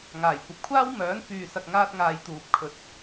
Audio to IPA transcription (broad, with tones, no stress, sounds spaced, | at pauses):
ŋ aː˨˩ j kʷ ɐ˨ p̚ kʷʰ aː˥ w m œː˨˥ n f yː˨ s ɐ˨ k̚ ŋ aː˥ t̚ ŋ aː˧ j t̪ uː˨ p̚ kʰ ɵ˨˥ t̚